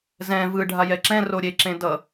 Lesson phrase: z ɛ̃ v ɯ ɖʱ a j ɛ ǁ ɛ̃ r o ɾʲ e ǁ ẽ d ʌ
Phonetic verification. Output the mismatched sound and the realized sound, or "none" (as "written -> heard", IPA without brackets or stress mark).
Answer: none